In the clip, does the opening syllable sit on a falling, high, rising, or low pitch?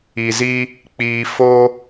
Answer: low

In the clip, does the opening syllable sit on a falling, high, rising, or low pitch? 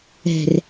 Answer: low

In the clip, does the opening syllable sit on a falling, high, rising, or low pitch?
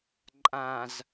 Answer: low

